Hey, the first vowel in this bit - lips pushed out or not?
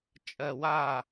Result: no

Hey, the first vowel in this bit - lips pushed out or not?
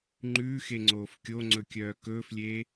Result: yes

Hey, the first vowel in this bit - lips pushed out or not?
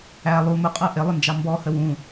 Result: no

